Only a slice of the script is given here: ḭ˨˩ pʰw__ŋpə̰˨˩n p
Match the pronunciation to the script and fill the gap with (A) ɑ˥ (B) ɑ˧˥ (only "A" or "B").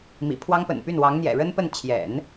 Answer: A